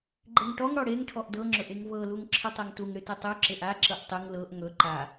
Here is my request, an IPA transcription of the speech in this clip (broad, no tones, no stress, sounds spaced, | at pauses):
ɡ͡ǃ e ŋ ʈ ɔ ŋ ɽ ɔ ɽ e ŋ ʈʰ ɔ ʔ d ɤ ŋ͡ǁ ɵ ʔ e ŋ v ɤ l u ŋ ǁʰ ɨ tˤ e ŋ t u ŋ ɽ ɨ t ɨ tˤ u ǁ e ʔ a ǁ ɤ ʔ tˤ ɨ ŋ l ɤ ʔ ŋ ɵ ǃ a